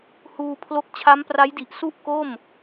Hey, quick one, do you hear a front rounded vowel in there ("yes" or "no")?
no